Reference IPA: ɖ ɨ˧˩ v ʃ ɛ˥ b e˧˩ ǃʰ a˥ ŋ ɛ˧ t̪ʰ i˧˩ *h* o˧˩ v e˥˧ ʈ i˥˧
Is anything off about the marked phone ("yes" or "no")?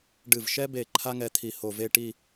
no